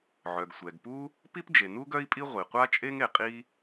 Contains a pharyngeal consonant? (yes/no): yes